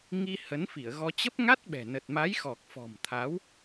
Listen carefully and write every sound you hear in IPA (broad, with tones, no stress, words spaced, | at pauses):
ŋi˧ hə˨˦nfi˧˩ə̯ɣɔ˧ t͡ɕə˦˥p̚ŋa˦˥t̚ɓɛ̤˨˩ nə˨˩t̚ma˨˦jxɔ˨˩k̚ fɔ̤˨˩mt̪ʰa˨˦w